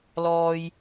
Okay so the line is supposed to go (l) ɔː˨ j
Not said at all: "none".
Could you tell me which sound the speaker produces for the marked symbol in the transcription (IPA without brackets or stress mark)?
l